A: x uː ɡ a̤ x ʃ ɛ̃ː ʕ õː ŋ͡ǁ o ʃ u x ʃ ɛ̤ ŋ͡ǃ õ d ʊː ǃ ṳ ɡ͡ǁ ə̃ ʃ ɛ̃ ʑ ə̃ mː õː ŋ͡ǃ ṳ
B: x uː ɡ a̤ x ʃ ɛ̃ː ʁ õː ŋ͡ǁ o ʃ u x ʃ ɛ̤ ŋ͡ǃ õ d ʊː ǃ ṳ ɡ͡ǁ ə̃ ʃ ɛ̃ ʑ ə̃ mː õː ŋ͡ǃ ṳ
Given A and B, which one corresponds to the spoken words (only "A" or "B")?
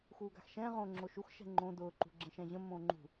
B